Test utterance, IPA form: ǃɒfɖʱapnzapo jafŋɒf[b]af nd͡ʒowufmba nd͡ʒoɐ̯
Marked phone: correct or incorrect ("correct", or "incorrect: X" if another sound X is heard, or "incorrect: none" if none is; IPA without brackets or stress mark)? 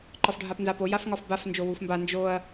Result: correct